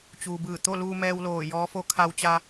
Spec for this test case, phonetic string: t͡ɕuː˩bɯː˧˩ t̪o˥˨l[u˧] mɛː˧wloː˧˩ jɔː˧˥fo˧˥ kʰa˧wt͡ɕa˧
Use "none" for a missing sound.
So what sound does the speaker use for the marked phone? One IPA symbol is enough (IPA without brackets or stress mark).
uː˧